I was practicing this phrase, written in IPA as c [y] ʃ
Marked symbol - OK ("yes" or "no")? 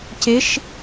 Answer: no